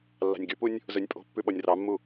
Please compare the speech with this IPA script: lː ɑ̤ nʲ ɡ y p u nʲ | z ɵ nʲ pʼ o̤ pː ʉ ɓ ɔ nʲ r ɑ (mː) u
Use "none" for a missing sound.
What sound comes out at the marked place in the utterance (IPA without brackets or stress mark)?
mː